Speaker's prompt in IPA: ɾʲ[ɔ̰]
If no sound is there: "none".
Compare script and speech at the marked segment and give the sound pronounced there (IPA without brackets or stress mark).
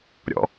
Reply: ɔ̰